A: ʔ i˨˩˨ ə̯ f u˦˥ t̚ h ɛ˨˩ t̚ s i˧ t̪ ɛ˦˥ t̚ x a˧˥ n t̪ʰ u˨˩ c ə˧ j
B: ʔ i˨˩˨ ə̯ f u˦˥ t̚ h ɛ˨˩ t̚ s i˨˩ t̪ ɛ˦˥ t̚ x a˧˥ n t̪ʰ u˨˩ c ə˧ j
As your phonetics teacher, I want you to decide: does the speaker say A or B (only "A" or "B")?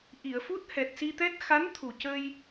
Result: A